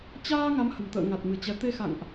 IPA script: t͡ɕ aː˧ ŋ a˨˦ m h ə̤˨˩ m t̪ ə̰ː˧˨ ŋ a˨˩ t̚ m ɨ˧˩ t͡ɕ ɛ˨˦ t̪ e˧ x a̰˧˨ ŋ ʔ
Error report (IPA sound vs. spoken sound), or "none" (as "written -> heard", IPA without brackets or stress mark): none